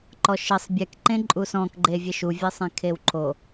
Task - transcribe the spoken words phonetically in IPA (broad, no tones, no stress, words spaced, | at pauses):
ǃɔʃɪsˤ bʲɛk ǃẽǃʼusɔ̃kɡ͡ǃe vʲeʃuvʲesˤẽ kʰewǃʰo